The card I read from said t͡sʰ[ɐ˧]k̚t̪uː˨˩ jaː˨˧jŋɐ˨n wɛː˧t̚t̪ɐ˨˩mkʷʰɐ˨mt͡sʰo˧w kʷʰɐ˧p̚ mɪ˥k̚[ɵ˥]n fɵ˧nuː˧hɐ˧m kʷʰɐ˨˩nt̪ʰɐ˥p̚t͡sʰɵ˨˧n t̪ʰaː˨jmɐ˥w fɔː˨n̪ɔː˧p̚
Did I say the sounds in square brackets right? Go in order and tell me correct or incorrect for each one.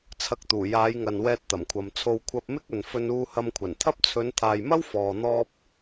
correct, incorrect: ɵ˨

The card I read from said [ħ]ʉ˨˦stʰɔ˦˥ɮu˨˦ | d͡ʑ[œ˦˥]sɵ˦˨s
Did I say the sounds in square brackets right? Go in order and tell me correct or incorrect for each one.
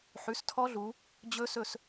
correct, incorrect: ɵ˦˥

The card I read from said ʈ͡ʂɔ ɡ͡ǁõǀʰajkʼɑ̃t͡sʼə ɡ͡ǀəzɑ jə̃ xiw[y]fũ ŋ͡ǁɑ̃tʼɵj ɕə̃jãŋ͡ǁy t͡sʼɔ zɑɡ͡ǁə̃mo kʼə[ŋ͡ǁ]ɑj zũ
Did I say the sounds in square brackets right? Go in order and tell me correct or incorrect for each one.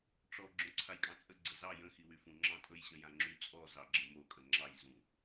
correct, correct

